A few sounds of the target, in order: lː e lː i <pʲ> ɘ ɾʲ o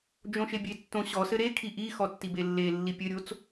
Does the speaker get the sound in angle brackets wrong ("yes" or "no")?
no